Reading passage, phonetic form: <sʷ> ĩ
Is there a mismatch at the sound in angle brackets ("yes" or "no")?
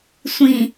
no